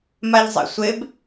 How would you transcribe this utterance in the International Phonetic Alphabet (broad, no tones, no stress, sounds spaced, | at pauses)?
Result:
m a ʎ zˤ ḛ sʷ e b